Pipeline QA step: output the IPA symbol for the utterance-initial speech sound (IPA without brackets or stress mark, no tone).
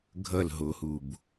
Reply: ɡʱ